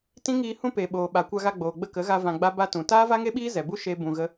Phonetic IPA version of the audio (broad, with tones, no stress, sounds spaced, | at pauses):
t ĩ˦ ŋ iː˧ h ũ˦ p e˨ ɓ oː˨ ɓ a˨ kʷ a˧ ɣ a˧ ɡ͡b oː˨ ɡ͡b ə˧ k ə˨˦ ɣ a˧ v ã˧ ɡ͡b a˦ b a˧ t ũ˨ t aː˦ v a˦ ŋ e˦ ɓ iː˦ z ɛ˨ b u˦ ʃ e˦ b ũ˧ ɣ ə˦